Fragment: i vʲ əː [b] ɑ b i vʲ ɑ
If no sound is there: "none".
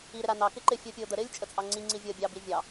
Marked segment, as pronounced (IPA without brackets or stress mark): bʲ